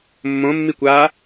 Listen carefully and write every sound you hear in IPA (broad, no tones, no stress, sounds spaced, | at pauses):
mː õ mː i kʷ aː